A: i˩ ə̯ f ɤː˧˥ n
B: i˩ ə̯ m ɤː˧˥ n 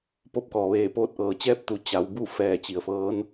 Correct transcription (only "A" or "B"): A